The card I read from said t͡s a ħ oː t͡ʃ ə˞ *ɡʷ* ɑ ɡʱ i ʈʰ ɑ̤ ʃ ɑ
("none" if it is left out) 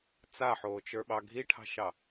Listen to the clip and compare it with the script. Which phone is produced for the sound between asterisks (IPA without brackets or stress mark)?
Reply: ɓ